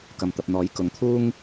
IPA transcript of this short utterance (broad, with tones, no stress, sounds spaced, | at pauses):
k ɐ˨ m t̪ ɐ˨ p̚ n̪ ɔː˨˥ j k ʊ˨˥ ŋ t̪ʰ uː˥ ŋ